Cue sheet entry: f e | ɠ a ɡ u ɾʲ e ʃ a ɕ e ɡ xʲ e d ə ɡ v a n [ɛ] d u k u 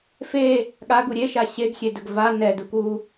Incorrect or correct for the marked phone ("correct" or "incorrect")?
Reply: correct